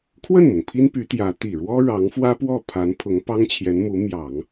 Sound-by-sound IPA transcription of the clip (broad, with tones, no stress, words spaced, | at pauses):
kʰwə˥˩nmʊ˩ŋ pʰi˥npy˧˥t̪jä˧˥ t̪i˨˩ ɻwɔ˥ɻɑ˧˥ŋfwä˥pwɔ˥˩ pʰa˧˥n pʰʊ˧˥ŋpɑ˥ŋt͡ɕʰjɛ˧˥n mu˧˥ mjɑ˨˩˦ŋ